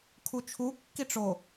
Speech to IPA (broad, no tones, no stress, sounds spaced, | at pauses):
kʰ u t͡ʃʰ u kː i ʈ͡ʂ o